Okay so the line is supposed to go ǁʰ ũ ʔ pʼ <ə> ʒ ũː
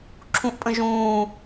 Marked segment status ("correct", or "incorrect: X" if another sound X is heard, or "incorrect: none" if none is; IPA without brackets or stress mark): incorrect: ə̃